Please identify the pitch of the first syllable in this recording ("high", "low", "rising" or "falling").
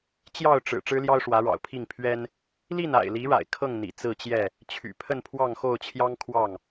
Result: falling